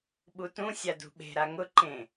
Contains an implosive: yes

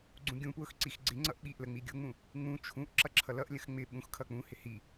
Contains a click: yes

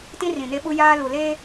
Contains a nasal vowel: yes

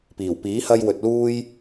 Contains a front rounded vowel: no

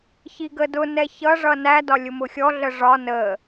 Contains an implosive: no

